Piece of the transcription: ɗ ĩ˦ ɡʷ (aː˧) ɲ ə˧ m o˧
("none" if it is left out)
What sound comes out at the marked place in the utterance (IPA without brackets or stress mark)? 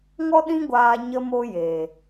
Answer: aː˧